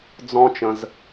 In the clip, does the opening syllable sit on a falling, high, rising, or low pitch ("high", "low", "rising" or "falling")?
high